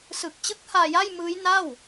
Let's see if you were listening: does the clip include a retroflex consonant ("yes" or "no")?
no